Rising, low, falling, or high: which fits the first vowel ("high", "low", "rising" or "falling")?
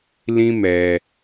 high